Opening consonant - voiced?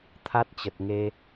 no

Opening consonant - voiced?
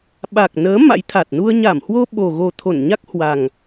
yes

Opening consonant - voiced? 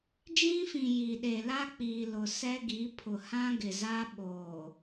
yes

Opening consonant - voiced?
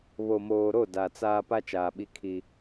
yes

